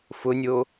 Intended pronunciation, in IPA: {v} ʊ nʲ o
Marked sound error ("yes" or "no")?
yes